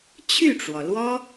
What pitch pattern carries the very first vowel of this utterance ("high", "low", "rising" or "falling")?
falling